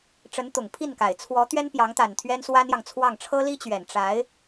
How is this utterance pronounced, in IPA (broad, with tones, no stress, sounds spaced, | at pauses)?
ʈ͡ʂ ə˧˥ n t̪ ʊ˨˩ ŋ pʰ i˥˩ n k a˨˩ ɪ̯ t͡sʰ w ɔ˧˥ t̪ ɥ ɛ˥ n p j ɑ˧˥ ŋ t̪ a˨˩ n t̪ʰ ɥ ɛ˥ n s w a˥ n j ɑ˨ ŋ t͡sʰ w ɑ˥˩ ŋ ʈ͡ʂʰ ɤ˥ l i˥ t͡ɕ ɥ ɛ˨˩ n ʈ͡ʂ a˧˥ ɪ̯